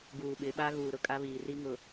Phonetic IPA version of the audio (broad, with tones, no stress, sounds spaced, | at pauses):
ɡ uː˨ ɓ ɪ˨˦ ɓ a˦ ɣ uː˨ ɾ ʊ˦ kʼ a˦ β iː˨ r i˦ ŋ ʊ˨